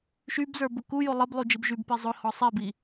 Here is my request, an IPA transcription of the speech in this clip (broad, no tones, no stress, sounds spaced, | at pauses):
ʃ y b z ə˞ b ʊ k u j o lˠ ə b lˠ u d͡ʒ i b ʒ y b p i zˤ ʊ h ɔ sˤ i b i